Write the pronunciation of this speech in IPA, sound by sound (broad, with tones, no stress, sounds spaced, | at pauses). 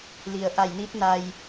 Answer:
l i˩ ə̯ ʔ a˧˩ j n i˧˥ t̚ n a˧ j